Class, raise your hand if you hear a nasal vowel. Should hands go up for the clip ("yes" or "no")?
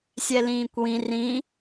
yes